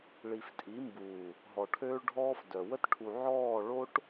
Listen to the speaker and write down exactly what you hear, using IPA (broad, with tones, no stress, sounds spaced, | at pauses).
ɭ i˨ f tʼ i˨˦ m b uː˨ | ɦ ɔ˨ ʈʰ øː˦ ɭ ɖʱ ɔː˦ f d œ˨ w ə˦ t ʈʰ u˨ ʕ ɔː˦˨ ɭ o˦ ʈ